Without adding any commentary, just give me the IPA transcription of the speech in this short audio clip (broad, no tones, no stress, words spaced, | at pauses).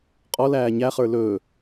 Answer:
qʼɔl æːɲæχə˞ lɵː